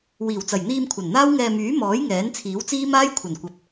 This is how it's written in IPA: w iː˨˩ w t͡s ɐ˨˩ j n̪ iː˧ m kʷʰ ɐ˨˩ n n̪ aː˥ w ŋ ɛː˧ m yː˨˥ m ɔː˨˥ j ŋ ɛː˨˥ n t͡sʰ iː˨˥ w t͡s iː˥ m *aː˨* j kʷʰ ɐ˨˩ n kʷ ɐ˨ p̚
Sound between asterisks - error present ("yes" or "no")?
yes